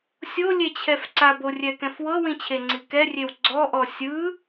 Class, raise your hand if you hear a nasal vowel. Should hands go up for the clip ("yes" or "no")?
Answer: yes